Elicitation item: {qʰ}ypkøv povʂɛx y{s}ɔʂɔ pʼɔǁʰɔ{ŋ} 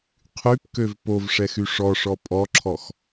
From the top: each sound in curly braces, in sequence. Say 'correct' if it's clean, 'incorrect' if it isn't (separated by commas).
correct, incorrect, incorrect